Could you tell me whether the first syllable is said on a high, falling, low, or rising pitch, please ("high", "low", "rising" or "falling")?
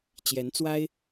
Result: rising